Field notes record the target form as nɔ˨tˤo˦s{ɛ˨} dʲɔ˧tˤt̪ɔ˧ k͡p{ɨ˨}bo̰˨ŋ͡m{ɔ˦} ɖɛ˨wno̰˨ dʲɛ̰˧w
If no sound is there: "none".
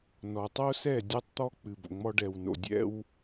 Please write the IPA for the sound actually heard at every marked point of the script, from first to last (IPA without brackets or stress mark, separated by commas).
ɛ˦˨, ɨ˨, ɔ˧